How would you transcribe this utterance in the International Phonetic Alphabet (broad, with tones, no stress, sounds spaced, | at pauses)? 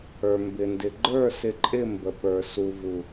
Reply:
ə˞˨ m b ɪ˨ n d ɪ˨ ɡ͡ǃ ə˞˦˨ s ɪ˨ ǃʼ ɪ˦˨ m b ə˨ p ə˞˨ s u˨ v u˨